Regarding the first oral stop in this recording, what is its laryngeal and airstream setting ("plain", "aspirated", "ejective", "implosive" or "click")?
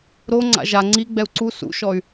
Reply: click